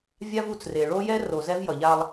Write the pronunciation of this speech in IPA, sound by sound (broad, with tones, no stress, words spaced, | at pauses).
vʲa˦vu˨t͡sre˨ ɭo˦jɛ˦ ro˨zɛ˦vjʌ˨ʎa˦lˠ